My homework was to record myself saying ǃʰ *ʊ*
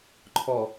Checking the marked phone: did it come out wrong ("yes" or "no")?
yes